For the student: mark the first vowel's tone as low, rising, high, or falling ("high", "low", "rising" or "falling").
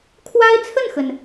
high